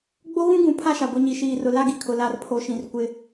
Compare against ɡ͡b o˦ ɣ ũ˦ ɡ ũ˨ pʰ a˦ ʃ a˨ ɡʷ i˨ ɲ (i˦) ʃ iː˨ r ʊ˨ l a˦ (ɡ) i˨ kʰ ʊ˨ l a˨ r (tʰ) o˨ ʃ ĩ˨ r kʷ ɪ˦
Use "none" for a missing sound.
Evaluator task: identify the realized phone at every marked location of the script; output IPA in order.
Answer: i˨, ɡ, pʰ

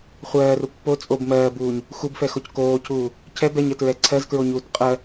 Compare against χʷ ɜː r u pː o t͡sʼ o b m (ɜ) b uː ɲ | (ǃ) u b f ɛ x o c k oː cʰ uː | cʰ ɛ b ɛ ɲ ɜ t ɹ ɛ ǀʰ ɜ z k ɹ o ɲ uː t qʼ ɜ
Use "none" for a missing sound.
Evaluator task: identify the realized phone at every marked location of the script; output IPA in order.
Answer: ɜː, x

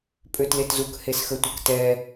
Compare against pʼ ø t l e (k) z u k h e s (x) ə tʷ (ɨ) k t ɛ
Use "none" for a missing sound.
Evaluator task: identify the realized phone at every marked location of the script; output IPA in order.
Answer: t, x, ə

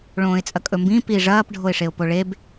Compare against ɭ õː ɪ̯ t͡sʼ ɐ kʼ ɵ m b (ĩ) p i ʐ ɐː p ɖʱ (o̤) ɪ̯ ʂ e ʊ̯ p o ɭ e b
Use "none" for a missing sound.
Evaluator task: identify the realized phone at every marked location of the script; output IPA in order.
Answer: ĩ, o

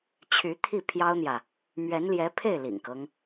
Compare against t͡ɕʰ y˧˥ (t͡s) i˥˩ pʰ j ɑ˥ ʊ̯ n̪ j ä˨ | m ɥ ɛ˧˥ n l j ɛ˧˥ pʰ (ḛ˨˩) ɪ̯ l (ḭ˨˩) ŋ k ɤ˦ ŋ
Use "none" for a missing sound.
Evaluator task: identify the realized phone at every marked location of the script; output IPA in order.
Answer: t̪ʰ, e˥˩, ḭ˨˩

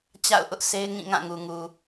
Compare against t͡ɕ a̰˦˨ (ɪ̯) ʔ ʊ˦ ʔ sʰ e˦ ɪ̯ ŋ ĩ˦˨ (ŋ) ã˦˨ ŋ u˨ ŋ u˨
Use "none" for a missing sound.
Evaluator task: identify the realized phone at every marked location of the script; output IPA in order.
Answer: ʊ̯, ŋ

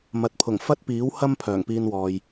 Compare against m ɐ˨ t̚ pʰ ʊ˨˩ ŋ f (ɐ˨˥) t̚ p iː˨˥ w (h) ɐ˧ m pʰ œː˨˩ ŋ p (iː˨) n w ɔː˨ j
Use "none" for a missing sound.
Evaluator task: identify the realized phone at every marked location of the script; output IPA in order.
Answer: ɐ˥, h, iː˧

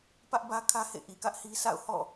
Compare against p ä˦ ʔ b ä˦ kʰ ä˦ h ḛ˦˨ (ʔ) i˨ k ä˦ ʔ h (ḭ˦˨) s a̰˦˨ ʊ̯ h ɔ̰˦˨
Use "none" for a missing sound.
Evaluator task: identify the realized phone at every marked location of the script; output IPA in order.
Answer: ʔ, i˦

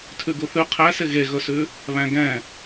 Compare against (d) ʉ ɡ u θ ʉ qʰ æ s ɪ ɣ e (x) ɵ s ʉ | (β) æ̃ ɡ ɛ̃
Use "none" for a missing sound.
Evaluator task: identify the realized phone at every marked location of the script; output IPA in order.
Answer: tʰ, ɣ, β

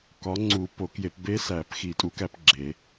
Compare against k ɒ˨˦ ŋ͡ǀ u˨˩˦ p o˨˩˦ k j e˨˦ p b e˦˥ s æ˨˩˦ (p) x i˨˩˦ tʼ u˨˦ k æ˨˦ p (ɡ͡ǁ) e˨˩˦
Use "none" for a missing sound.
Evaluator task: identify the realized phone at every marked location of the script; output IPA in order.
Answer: p, ɡ͡ǁ

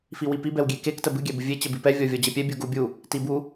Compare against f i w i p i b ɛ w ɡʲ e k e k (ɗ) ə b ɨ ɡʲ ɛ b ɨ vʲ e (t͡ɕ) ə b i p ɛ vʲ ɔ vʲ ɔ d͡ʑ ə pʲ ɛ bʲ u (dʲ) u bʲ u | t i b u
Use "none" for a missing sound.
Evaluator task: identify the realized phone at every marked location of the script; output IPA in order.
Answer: t, t͡ɕ, ɡ

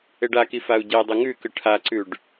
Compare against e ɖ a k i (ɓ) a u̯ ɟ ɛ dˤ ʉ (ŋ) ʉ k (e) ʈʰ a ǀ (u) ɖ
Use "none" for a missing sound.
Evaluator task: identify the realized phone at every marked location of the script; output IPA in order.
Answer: f, ŋ, ɨ, ʉ

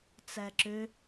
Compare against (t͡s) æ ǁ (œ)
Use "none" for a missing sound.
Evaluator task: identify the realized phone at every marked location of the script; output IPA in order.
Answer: t͡s, ø

